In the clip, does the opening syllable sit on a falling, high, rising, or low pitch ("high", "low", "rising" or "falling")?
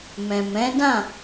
low